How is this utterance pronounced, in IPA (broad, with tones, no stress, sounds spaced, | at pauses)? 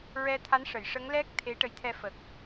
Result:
ɹ ɛ˧ t̪ʰ a˧˥ n ʂ ə˨˩˨ j ʂ ə˧˥ ŋ l ɛ˦˥ k̚ t̪ʰ e˧˥ ʈ ə˧˥ j t̪ʰ ɛ˧ f ə˨˩ k̚